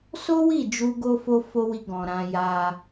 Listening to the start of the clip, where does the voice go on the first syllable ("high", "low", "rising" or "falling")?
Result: high